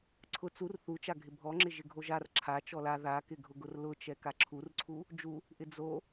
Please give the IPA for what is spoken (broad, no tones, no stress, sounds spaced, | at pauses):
ǀʰ ʊ t͡s u r θ u t͡ʃ a ɡʱ ɪ bʱ ɔ ŋ͡ǁ ɪ ʒ ɪ ɡʱ o ʒ a r ǁʰ a t͡ʃ ɔ l a ð a k ɪ ɡʱ ʊ ɡ ʊ r l ʊ t͡ʃ ɛ k a ǁʰ u r ǀʰ u | d͡ʒ u | ʔ ɪ d͡z o